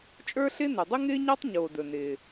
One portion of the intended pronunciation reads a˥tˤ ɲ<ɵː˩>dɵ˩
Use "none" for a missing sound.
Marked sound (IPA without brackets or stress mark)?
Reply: oː˩